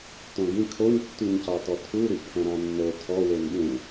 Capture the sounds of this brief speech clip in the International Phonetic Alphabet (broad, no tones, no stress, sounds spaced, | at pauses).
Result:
t õ ɡ ĩ kʰ o ɲ tː y ɲ c ɑ t ɔ tʰ u ɾ y ʔ pʰ ɛ̃ ɾ ɑ̃ nː o tʰ ɔ w e n ɠ ũ